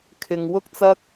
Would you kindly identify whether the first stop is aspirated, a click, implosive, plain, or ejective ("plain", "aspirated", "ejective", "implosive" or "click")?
aspirated